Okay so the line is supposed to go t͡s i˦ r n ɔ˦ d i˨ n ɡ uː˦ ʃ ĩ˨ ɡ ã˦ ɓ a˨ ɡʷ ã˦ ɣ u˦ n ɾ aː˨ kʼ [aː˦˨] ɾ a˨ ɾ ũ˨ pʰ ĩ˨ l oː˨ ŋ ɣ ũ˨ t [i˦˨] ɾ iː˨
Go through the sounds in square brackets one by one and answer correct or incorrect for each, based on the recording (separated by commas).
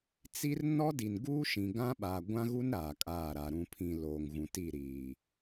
correct, correct